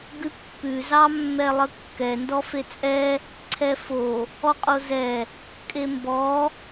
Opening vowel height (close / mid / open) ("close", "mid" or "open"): close